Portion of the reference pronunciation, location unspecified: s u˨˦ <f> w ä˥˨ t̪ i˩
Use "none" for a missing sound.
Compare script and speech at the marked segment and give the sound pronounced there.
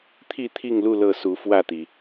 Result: f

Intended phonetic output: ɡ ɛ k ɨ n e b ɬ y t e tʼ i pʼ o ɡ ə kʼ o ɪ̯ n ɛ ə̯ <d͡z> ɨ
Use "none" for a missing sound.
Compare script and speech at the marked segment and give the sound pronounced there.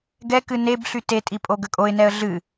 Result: ɮ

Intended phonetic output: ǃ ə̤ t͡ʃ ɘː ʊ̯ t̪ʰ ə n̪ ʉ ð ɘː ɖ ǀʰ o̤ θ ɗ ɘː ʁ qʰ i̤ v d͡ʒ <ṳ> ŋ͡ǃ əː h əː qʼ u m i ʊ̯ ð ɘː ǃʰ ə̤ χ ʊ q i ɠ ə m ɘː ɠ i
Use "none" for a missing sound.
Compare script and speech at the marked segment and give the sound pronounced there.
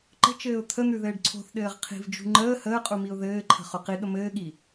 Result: ṳ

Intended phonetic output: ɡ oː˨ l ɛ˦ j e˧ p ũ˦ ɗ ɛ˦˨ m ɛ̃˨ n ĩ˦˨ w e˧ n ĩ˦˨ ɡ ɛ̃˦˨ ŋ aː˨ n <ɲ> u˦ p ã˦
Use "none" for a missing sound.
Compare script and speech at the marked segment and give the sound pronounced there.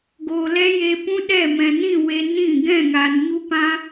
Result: ɲ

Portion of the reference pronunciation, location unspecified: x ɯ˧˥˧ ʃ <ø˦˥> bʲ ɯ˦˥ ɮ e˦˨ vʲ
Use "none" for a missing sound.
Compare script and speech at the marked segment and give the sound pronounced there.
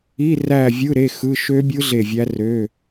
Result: ø˦˥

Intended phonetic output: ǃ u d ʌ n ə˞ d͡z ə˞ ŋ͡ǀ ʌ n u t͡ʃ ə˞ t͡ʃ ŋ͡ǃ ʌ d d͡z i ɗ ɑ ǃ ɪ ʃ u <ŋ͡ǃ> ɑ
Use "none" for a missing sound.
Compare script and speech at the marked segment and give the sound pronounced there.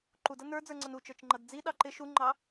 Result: ŋ͡ǃ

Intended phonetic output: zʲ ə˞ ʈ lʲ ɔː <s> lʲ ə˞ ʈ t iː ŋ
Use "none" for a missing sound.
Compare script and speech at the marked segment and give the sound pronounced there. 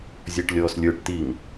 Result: s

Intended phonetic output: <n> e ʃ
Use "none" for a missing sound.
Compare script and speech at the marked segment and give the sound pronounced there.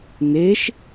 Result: n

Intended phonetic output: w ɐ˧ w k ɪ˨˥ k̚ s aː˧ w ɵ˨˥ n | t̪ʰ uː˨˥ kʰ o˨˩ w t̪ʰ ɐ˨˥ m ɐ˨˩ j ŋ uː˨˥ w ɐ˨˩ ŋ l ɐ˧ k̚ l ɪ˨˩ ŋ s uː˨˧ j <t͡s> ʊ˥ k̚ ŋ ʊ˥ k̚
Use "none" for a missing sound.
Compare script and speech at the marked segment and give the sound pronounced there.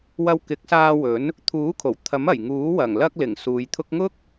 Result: t̪ʰ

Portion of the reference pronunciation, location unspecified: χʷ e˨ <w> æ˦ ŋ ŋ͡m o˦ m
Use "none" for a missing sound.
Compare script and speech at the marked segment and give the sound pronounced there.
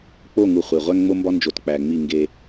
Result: ʁʷ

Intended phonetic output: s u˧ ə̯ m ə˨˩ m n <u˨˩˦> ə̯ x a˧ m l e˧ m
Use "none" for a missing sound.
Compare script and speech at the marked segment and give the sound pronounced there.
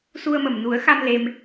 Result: u˨˩˦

